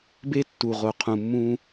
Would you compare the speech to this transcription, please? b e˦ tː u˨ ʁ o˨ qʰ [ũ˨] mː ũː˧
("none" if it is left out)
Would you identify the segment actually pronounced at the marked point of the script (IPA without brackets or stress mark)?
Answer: ũ˨